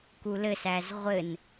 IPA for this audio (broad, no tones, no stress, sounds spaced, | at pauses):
k u l ɘ s æ z ʁʷ ɘ n